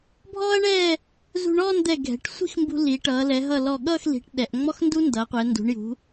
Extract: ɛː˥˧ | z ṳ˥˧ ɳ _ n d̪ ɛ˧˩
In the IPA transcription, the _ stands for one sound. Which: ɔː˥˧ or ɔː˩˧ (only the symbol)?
ɔː˥˧